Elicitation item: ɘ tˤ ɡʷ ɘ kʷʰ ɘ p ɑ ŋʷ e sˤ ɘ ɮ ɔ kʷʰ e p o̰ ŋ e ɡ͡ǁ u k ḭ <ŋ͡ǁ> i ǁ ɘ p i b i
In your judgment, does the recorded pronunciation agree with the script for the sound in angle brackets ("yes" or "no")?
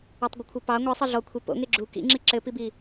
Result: yes